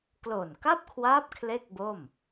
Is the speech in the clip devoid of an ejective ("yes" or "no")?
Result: yes